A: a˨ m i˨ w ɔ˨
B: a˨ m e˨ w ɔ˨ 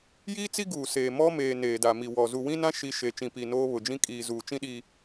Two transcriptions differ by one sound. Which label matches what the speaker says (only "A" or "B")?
A